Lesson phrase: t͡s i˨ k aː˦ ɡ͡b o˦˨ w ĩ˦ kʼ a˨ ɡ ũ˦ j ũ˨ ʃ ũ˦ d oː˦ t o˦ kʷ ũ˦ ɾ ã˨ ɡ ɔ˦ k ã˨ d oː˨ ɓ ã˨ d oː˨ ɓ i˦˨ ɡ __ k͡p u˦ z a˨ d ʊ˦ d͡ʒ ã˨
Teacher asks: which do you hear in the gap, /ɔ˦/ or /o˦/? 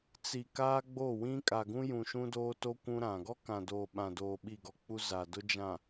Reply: ɔ˦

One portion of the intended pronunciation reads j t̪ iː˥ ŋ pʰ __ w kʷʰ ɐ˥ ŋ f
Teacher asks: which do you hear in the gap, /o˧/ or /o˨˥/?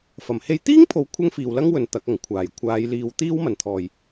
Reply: o˨˥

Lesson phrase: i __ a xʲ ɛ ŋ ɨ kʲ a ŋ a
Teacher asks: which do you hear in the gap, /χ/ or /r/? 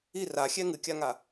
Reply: r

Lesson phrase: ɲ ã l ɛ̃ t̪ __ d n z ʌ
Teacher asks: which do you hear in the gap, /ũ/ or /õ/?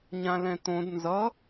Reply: õ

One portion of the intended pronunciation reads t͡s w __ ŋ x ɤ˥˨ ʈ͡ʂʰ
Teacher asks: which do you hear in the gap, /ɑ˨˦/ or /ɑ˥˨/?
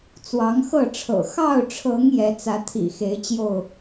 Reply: ɑ˨˦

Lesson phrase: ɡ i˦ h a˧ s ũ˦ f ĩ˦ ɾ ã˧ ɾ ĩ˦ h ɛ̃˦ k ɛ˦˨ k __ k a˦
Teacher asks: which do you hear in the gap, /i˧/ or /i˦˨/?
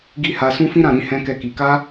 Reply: i˧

